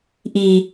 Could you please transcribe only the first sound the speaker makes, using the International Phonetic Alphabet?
ʔ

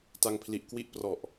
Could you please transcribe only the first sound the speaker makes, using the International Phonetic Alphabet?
t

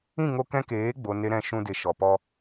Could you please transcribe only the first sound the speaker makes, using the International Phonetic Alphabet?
ĩ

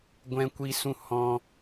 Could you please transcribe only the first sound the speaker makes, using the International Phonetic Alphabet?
ɡʷ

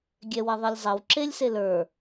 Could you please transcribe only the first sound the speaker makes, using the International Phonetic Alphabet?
ɡʲ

